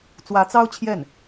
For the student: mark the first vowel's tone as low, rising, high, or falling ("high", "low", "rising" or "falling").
rising